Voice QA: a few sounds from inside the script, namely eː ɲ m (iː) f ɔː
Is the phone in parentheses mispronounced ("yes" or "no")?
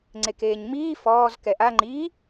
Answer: no